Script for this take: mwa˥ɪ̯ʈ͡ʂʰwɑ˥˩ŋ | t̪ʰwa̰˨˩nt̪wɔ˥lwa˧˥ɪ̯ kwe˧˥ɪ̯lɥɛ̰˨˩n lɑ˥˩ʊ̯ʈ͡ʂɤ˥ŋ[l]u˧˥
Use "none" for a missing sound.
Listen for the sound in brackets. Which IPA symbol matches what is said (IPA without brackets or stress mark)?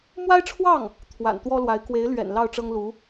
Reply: l